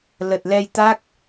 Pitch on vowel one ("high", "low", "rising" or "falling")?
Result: low